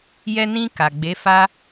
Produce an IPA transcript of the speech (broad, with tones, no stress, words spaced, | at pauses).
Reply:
jɛ˧nĩ˧ ka˨ɡ͡be˨˦ fa˧